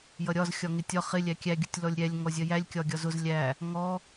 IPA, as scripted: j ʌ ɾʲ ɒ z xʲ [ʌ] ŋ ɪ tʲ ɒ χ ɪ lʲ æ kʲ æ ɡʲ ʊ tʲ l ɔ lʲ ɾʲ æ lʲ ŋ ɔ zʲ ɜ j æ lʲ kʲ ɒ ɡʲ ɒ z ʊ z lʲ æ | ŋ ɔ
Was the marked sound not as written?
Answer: yes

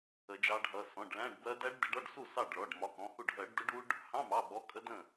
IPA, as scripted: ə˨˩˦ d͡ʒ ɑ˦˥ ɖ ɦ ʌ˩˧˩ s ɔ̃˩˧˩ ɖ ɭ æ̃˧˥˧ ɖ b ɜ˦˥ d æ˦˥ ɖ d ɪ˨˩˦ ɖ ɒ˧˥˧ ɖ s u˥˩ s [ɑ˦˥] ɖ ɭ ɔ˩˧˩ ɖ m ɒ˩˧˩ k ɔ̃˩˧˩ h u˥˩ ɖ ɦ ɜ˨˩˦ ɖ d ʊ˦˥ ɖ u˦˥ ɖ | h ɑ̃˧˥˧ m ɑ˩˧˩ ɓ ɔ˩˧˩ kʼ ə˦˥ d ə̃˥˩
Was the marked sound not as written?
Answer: yes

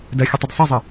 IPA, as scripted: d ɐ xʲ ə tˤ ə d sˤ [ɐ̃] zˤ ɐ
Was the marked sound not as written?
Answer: yes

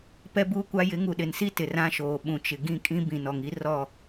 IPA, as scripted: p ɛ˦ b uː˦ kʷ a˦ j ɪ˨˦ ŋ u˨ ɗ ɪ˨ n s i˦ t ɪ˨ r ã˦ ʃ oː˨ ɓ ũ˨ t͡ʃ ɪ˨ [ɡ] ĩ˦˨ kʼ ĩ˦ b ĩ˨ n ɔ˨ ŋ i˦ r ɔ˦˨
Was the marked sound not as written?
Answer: no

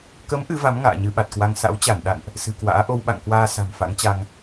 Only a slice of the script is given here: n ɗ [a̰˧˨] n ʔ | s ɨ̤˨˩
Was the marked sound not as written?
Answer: no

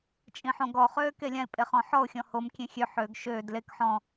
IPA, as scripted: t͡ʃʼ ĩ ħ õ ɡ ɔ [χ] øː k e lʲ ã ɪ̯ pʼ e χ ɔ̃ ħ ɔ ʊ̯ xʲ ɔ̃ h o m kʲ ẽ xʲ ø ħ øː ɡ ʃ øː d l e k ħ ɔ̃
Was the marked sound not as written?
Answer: no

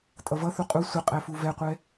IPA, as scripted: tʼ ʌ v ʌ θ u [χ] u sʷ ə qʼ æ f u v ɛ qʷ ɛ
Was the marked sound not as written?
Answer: yes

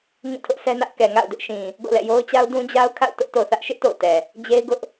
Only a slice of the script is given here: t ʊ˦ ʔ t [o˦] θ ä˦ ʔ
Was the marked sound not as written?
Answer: yes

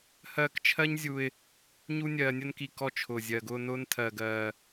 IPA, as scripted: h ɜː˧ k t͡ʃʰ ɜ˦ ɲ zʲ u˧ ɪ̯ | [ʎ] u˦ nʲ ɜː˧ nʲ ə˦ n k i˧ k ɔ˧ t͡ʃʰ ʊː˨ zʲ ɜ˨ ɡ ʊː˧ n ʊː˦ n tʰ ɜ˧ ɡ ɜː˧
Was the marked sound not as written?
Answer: yes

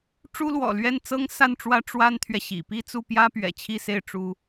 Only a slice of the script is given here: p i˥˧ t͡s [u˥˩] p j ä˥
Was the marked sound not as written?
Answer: no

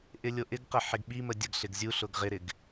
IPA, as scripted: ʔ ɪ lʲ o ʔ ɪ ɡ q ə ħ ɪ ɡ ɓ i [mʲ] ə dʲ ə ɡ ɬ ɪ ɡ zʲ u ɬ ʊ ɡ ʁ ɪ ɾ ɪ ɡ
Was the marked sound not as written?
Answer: yes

